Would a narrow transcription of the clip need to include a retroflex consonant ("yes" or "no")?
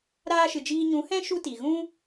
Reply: no